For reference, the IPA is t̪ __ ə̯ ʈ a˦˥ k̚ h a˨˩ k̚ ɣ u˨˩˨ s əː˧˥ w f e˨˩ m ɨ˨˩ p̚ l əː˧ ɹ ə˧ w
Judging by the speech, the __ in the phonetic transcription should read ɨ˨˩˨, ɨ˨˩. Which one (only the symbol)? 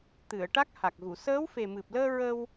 ɨ˨˩˨